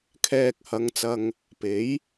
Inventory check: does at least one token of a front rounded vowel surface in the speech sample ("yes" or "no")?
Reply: no